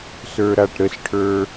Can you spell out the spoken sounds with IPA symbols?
s ə˞ ɾ a ʈ ɾ ə s ʈʰ ə˞

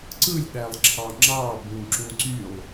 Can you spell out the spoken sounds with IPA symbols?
ǀ ɯ lʲ ɗ æ lˠ ǁʰ ɑ ŋ͡ǁ ɑ b ũ ǁ ũ ǀ y lˠ

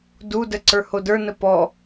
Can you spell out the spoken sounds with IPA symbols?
d u d ə ǀ ə˞ h o d ə˞ n ə p ɔ

